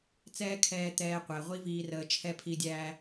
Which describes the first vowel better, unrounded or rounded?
unrounded